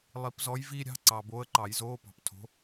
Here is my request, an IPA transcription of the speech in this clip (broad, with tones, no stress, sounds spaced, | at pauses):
lˠ i˨˩˦ p z ɔ˧˥ j v iː˥ ɾʲ ɑ̤˧˥˧ ǀ ɑ˨ b oː˧˥ ə̯ ǃ ɑ˨˩˦ j z oː˧˥˧ p ɑ̤˨ p tʰ o̤˧˥